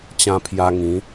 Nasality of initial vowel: nasal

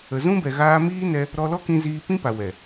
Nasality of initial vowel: oral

